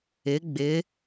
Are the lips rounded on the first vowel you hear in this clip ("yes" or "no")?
no